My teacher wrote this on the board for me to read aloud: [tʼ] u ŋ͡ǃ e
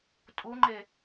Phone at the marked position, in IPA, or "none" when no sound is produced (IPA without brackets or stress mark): tʼ